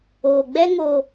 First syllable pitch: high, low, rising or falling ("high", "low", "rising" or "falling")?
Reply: low